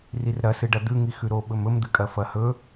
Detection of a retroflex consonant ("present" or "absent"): present